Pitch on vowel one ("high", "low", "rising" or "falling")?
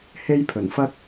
high